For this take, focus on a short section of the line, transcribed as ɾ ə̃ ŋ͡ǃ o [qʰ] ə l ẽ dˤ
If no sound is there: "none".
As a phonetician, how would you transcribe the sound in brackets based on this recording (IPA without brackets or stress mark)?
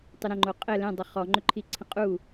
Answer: qʼ